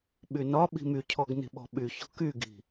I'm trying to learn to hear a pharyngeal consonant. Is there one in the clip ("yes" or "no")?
no